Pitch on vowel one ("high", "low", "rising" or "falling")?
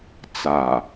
low